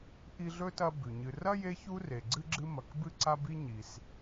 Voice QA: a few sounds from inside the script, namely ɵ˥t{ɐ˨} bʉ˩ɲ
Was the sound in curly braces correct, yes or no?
no